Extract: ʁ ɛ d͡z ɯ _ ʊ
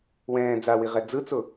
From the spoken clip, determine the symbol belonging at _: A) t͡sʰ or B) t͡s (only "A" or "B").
B